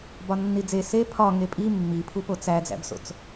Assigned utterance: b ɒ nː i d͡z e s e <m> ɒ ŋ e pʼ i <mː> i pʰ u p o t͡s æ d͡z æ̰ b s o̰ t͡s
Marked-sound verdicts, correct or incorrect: incorrect, correct

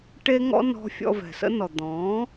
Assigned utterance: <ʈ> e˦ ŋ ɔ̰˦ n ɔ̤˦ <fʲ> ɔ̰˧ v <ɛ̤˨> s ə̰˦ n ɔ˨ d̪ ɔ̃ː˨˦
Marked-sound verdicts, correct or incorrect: correct, correct, correct

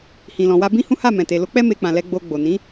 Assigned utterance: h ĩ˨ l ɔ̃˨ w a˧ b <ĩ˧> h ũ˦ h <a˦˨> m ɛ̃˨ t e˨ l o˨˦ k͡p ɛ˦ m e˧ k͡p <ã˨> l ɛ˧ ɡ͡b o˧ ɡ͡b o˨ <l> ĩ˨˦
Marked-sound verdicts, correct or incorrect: incorrect, correct, correct, incorrect

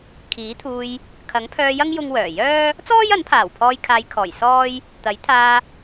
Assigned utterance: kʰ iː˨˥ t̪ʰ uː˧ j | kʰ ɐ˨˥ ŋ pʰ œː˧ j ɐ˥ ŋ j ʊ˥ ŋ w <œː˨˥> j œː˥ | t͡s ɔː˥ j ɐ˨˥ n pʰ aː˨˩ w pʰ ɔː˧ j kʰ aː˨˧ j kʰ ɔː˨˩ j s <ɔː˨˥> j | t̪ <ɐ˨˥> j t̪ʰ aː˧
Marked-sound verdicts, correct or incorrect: incorrect, incorrect, correct

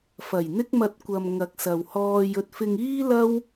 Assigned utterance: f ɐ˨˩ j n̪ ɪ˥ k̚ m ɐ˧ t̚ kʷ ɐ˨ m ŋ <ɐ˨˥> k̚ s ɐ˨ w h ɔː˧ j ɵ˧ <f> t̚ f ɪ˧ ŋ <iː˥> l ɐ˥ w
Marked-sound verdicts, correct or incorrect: correct, incorrect, correct

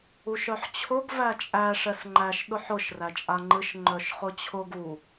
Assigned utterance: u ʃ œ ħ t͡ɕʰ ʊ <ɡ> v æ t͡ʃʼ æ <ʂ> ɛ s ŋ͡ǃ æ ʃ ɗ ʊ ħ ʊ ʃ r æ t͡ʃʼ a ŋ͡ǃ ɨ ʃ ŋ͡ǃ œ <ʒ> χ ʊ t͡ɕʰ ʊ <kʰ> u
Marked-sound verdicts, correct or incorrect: correct, correct, incorrect, incorrect

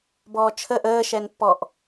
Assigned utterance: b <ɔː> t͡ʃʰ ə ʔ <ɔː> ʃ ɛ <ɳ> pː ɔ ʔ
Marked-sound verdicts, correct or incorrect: correct, incorrect, incorrect

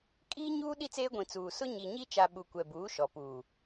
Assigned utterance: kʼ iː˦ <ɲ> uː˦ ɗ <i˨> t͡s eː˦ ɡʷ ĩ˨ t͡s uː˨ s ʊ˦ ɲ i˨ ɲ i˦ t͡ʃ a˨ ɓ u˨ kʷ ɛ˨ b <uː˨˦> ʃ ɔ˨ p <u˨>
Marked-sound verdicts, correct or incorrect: correct, incorrect, correct, incorrect

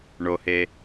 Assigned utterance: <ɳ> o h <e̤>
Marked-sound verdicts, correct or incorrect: correct, incorrect

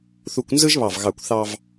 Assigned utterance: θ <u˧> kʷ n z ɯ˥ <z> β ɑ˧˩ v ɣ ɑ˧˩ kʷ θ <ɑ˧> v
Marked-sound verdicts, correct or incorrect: correct, incorrect, correct

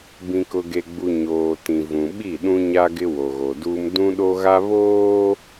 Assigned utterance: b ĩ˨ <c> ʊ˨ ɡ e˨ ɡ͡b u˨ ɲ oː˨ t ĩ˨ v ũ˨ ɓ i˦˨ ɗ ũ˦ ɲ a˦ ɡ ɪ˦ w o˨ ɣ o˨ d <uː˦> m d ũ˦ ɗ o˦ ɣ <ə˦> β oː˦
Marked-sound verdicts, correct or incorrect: incorrect, correct, incorrect

